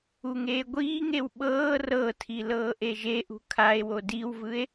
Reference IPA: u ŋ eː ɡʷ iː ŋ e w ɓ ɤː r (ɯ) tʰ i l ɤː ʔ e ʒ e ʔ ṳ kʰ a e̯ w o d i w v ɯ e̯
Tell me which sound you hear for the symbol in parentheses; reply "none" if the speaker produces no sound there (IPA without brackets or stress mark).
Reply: ɤ